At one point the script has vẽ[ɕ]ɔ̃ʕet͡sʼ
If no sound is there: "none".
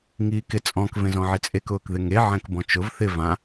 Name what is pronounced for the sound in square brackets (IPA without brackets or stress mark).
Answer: z